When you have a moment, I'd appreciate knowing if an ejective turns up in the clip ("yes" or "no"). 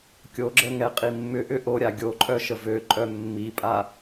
yes